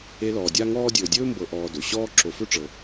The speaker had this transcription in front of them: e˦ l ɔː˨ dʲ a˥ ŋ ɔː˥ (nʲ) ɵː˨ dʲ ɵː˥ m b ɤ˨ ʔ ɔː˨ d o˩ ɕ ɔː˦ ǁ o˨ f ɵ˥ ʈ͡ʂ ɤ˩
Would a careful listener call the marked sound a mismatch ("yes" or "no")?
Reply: yes